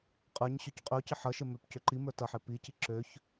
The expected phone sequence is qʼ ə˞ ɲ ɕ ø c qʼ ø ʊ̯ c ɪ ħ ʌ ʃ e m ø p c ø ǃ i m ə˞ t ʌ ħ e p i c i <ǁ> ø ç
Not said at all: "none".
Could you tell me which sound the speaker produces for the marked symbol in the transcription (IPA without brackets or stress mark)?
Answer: ǁ